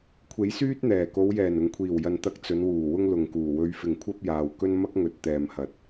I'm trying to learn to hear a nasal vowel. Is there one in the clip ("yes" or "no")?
no